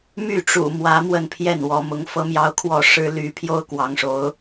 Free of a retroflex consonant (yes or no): no